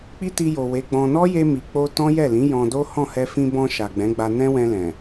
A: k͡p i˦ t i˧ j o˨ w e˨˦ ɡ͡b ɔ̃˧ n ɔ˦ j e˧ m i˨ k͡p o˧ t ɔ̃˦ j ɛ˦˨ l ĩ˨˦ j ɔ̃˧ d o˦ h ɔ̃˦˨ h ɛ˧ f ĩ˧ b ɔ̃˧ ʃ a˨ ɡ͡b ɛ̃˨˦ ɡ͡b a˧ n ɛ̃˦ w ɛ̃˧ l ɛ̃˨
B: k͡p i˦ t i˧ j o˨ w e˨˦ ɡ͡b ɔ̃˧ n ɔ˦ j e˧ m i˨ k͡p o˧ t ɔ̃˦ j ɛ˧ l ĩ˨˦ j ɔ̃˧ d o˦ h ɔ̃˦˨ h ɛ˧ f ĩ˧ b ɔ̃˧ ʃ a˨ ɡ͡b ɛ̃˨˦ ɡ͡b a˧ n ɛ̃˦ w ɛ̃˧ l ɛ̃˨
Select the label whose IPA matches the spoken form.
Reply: A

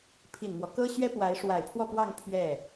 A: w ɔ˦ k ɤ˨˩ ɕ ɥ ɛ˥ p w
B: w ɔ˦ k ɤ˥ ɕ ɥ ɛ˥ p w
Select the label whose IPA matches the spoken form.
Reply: B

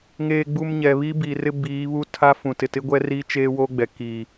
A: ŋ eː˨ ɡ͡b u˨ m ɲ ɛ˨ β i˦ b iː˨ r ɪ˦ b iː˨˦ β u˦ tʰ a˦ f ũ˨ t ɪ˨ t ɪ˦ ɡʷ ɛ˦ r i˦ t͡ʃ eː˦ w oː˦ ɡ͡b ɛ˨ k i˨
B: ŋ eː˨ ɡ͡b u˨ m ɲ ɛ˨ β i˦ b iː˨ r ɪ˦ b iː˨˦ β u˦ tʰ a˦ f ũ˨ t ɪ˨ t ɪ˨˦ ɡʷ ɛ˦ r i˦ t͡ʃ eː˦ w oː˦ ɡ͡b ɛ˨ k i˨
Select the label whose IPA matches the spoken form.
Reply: A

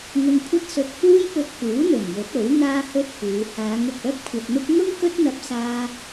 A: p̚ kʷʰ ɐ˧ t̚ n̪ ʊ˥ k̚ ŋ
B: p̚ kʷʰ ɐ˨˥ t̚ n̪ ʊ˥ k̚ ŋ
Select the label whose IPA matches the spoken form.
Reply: A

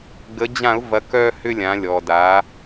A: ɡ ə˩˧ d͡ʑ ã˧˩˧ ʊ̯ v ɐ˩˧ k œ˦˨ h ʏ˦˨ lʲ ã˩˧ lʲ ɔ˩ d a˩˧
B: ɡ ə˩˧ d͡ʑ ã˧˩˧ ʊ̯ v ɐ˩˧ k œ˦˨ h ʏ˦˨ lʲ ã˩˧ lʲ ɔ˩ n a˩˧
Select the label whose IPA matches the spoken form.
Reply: A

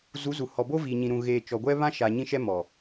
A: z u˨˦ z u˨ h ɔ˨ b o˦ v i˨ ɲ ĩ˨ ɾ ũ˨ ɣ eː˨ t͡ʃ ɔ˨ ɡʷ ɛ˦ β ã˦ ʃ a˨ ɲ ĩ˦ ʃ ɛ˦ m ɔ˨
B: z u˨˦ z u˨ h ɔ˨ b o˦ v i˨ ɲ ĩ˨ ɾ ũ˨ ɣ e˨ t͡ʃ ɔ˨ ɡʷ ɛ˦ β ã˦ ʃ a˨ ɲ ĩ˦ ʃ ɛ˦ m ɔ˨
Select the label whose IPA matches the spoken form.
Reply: A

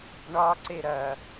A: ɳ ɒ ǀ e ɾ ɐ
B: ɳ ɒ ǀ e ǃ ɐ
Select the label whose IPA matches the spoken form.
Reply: A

